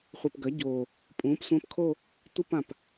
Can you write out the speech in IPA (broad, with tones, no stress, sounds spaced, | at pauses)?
χʷ ɨ˨˩ p ɡ ɐ˩˥ ɟ o˨˩ | pʼ ũː˩˥ p sʷ ɐ̃˧˥˧ p kʰ o˥˧ | tʷ i˥˧ p ã˨˩ p